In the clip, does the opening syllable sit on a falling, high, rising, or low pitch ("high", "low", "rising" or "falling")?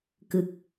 low